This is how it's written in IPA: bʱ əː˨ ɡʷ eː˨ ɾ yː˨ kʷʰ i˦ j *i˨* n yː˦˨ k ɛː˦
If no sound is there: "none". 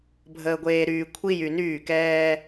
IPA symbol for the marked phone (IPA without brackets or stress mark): y˨